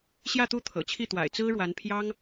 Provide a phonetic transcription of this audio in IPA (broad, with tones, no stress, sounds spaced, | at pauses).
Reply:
ɕ j ä˥˧ t̪ u˥˩ t̪ʰ ɤ̰˨˩ t͡ɕʰ i˥˩ t̪ w a̰˨˩ ɪ̯ t͡s ɹ̩˥ ɻ w a˧˥ n pʰ j ɑ˥ ŋ